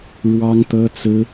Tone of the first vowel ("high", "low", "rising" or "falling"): high